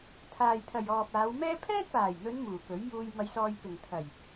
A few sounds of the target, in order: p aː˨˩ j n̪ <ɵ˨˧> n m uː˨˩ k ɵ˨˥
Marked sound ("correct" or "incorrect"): correct